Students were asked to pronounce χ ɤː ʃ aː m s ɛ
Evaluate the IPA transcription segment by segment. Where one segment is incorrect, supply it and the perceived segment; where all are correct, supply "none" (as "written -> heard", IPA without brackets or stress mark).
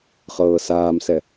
ʃ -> s